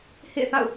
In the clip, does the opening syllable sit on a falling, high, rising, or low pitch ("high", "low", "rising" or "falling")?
falling